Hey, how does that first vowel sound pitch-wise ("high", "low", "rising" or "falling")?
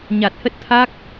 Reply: low